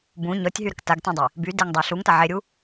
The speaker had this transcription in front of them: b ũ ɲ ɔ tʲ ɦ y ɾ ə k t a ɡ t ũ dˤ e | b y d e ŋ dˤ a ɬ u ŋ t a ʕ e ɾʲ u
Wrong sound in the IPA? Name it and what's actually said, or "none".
none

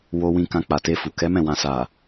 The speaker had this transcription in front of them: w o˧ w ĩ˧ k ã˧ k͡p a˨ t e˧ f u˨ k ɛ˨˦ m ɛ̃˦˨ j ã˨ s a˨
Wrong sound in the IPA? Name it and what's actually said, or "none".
j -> w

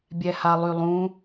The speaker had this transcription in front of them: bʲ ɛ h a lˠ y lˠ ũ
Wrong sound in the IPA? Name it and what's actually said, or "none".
none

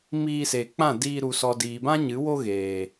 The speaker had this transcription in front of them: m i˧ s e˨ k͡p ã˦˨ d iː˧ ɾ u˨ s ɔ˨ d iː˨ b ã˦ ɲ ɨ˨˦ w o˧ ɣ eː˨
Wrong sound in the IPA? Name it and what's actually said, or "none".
i˧ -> iː˧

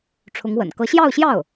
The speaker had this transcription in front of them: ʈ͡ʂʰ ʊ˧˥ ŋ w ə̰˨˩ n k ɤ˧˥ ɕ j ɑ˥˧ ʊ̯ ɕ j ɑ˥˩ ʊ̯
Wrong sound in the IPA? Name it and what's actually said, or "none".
none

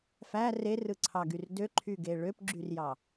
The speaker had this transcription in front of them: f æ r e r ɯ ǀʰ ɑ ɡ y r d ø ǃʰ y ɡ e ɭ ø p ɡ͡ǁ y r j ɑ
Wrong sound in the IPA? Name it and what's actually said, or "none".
none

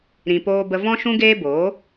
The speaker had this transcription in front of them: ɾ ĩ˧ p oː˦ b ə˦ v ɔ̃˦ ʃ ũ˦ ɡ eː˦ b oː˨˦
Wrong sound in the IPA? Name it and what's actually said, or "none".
none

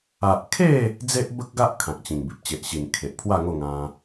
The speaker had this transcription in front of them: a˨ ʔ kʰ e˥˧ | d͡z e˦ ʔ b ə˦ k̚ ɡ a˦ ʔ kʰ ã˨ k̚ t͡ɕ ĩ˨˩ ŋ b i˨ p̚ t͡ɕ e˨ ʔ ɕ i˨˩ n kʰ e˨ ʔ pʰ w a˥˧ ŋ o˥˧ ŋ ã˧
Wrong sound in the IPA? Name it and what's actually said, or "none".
none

